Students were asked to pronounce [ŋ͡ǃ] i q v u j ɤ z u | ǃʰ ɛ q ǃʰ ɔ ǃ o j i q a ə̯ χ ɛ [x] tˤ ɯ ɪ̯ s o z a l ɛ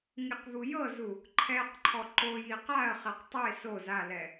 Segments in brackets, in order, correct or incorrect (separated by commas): incorrect, incorrect